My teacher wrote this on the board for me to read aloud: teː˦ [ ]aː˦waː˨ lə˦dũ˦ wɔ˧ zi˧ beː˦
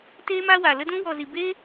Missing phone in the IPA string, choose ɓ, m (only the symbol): m